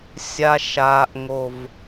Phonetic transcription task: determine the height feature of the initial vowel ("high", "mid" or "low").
low